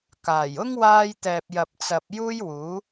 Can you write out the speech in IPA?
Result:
kaː˨˩jʊ˥ŋ waː˧jt̪ɛː˨p̚ jɐ˨p̚t͡sɐ˨p̚ juː˥jwuː˨˥

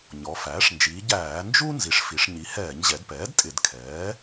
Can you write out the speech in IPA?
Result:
ɲɔ˩˧fæː˩˥ʂ nd͡ʒiː˩˧ ɟæː˧˩˧nd͡ʒu˥ nzi˩˥ʂfi˩˧ʂɲi˩˥ hɛː˧˩˧ɲʑɛ˩˧dpɛː˩˥d tʼɪ˧˩˧dkʰɛː˩˥

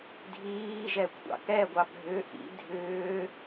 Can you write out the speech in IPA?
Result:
dʱiːʒɛkʷʰɑ̰ kɛɡʷɑ bʱʏ ʔḭ dʱʏː

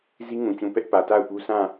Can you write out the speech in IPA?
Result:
zi˦ŋũ˨t͡ɕũ˨ pɛ˦ʔpä˨ta˦˨ʊ̯pu˦ sã˦˨

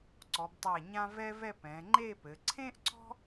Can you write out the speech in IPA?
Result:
ǀɔ˩˧btˤæ˧˩ ɲã˧ vɛ˥vɛ˥˧p ɛ̃˩˧ŋ͡ǃe˥˧pɘ˩˧ ǀʰẽ˥ʔǀɔ̤˥

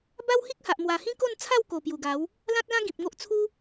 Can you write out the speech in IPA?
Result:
ba˦whi˦k̚ha˨ʔ mwa˨˩hĩ˦ko˥˧nt͡sʰa˥˧w ko˨˩ pju˨˩ɡa˨˦w | lã˦t̚lã˦ ɡĩ˨p̚ŋo˦ʔ t͡sʰu˦

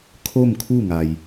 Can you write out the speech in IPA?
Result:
kʰo˥˨mkʰu˥˨ŋa˩j

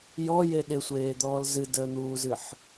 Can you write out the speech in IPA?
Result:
jɔje ɗɪsʷeːd̪ɔːl zɨdəːn̪uːzɨħ

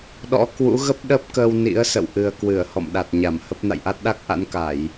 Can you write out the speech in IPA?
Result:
ɗɔ̰˧˥ kwṵ˧˥ɣə˦˥p̚ɗə˦˥p̚kəː˧w nḭ˧˥ə̯sə̰˧˨w ʔɨ˨˩ə̯kwɨ˧˩ə̯ hɔ̰˧˨mɗa˨˩t̚ ɲa˧˩mhə˦˥p̚ na̰˧˨jʔa˦˥t̚ɗa˦˥k̚ʔa̰˧˥n ka˧˩˨j

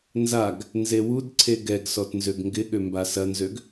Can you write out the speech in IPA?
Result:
nzaɡ | nzewudǀʰe ɡɛɡsɔt nzøɡŋɡɪɠø mbasɐnzøɡ

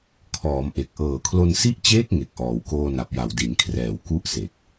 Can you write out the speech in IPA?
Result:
kʰɔː˩˦mʔe˨˩k̚ ʔɤː˨˩kʰlo˧n si˦˥ʔt͡ɕeː˦˥k̚ ŋe˨˩k̚ʔɔː˩˦wkoː˧ na˨˩p̚ja˨˩w di˩˦nkʰrɛː˨˩w ku˥˩ʔse˨˩k̚

